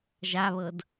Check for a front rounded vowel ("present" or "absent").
absent